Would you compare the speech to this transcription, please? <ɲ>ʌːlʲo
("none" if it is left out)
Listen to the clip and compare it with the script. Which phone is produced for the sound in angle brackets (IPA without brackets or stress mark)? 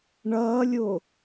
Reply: ɳ